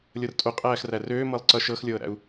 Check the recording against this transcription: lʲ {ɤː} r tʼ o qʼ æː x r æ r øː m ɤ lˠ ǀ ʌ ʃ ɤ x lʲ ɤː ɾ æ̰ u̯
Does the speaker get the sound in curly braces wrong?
yes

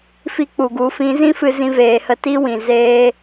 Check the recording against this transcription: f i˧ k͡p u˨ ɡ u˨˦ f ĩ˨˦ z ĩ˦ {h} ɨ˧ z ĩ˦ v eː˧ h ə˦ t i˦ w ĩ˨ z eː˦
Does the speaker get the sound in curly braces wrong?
yes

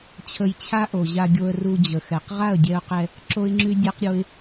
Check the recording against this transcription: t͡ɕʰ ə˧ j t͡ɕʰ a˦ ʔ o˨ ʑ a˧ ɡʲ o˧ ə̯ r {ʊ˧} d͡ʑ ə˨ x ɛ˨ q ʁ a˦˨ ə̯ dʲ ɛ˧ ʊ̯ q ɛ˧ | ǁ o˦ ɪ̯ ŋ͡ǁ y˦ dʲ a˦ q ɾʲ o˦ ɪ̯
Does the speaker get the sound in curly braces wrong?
yes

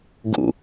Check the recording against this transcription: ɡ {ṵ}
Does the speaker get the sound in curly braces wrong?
no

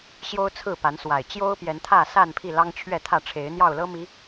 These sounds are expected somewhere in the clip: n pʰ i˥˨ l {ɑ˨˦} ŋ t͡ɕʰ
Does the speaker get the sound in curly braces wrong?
yes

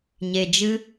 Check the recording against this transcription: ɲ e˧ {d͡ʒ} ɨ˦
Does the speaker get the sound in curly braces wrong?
no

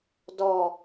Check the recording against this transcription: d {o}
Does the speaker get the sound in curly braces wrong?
yes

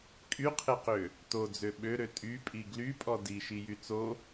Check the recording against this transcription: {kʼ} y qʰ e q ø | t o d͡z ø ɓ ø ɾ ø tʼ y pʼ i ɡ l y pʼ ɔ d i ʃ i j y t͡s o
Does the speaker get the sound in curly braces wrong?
no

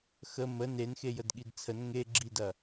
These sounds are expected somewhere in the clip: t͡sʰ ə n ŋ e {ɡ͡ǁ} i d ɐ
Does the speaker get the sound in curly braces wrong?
no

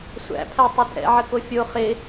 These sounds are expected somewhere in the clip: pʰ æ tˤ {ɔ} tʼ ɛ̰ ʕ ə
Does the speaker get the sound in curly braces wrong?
yes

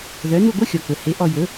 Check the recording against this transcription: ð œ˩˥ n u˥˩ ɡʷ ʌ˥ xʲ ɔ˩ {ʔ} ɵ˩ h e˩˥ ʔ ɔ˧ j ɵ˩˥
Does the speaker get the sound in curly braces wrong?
yes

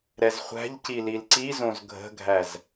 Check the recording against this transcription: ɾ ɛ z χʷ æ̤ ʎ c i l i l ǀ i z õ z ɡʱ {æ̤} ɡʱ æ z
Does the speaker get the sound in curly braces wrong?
yes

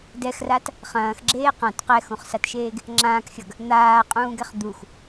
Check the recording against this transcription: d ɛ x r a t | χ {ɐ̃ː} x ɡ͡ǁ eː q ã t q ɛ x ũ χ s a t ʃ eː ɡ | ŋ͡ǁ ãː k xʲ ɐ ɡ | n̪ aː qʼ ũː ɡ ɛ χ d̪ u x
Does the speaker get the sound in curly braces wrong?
no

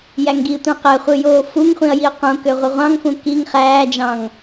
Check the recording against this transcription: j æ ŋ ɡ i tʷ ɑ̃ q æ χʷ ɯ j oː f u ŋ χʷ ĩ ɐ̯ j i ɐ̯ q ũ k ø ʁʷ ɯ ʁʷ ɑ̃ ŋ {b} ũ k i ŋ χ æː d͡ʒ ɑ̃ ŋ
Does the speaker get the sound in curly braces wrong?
yes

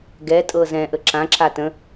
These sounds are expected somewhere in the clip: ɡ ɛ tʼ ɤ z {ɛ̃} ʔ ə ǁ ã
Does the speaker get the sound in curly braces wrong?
no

